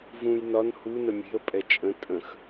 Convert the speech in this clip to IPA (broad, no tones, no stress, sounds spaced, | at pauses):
v ũ j n ɒ n h u n ə mʲ e̤ ə̯ pʼ ɛ t͡ʃʼ ə̃ tʼ ə̃ x